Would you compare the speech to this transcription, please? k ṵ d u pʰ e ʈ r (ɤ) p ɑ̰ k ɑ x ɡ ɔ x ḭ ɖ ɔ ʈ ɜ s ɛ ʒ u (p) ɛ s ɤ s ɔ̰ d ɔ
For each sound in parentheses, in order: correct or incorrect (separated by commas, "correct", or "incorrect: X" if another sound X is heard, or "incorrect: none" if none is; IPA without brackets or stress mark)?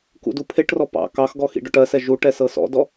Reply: incorrect: ɔ, incorrect: ʈ